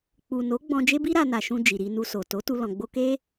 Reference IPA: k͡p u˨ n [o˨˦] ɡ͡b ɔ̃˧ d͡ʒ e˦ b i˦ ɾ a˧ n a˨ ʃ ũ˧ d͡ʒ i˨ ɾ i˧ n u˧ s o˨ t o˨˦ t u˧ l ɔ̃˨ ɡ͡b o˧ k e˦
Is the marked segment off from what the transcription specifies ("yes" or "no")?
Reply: no